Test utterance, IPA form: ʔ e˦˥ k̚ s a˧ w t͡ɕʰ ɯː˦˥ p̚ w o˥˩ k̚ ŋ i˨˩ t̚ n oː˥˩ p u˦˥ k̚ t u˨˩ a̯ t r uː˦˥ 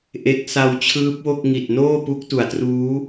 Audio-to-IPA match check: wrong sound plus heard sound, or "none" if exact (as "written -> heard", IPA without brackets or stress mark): none